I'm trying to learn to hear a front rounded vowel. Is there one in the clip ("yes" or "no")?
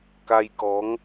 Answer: no